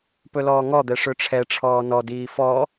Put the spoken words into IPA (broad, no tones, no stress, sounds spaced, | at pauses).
p ɵ l ɔː ŋ ɔ d̪ ɛ ʂ ɵ ʈ͡ʂʰ ɛ ʈ͡ʂʰ ɔː n ɔ d iː f ɔ